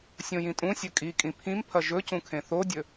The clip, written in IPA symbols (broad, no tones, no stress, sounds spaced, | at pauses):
sʲ õ j ĩ tʼ ũ sʲ ɵ kʼ i kʼ ĩ pʰ ĩ m pʰ ɐ ʒ ɵ c ũ kʰ ẽ θ o dʲ ɵ